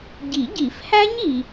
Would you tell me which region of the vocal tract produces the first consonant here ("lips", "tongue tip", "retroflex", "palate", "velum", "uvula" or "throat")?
palate